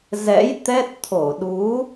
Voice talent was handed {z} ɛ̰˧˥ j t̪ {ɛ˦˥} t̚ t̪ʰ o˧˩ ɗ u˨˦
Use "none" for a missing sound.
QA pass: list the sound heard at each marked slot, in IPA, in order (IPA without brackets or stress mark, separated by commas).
z, ɛ˦˥